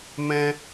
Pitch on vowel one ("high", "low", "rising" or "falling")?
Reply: high